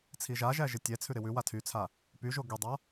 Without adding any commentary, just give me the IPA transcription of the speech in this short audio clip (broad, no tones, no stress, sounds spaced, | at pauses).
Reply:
t͡sʰ i ʒ a ʒ æ ʒ ɪ tʲ ɛ t͡sʰ ʉ ɾ ɪ w ʉ w a tʰ y t͡sʰ a | p y ʒ o ɡ y dˤ a